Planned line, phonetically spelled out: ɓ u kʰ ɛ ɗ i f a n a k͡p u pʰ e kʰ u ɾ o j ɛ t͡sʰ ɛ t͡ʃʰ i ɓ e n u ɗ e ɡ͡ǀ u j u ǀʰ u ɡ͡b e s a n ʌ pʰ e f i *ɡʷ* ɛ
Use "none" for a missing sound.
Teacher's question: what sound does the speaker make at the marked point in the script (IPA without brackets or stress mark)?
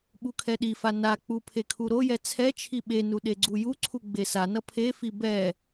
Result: b